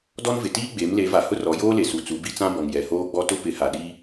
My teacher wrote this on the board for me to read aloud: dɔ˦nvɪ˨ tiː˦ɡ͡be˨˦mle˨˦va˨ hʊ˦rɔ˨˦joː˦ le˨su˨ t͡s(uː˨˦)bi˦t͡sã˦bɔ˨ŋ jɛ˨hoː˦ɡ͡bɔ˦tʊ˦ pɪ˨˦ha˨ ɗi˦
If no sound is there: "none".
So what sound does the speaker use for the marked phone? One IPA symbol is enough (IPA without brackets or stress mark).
u˨˦